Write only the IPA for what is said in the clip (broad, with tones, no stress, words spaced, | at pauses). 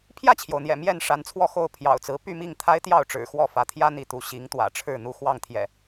pʰjä˥˨t͡ɕʰjo˩ʊ̯n̪jɛ̰˨˩ mjɛ˥˨n ʂa˨˦nt͡sʰwɔ˥˨xo˥˨ʊ̯ pʰjɑ̰˨˩ʊ̯t͡sɹ̩˨˦ py˥˨mi˥˨ŋt̪ʰa˦ɪ̯ t̪jɑ˥˨ʊ̯ʈ͡ʂɻ̩˨˩ xwɔ˥˨fä˨˦ t̪ʰjä˦n̪i˨˦ t̪u˨˦ ɕi˨˦ŋ t̪wä̰˨˩ʈ͡ʂʰɻ̩˥˨ n̪u˦ xwɑ˥˨ŋt̪ʰjɛ̰˨˩